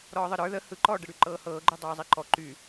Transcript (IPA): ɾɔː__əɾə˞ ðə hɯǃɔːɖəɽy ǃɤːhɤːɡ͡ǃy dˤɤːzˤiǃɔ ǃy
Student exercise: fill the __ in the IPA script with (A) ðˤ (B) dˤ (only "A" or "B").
A